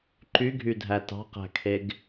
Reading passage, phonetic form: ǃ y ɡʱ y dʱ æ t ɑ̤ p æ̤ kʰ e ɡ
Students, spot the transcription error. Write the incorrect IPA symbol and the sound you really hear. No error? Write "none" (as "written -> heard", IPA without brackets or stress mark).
p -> q